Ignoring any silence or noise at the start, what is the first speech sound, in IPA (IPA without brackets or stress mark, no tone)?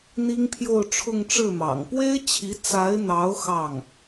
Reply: n̪